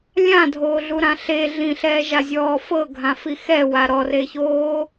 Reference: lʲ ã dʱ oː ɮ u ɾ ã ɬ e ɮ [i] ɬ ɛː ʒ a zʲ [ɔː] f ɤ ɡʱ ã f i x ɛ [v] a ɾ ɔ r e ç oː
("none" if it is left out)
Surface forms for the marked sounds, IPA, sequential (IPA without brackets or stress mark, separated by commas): ĩ, ɔː, w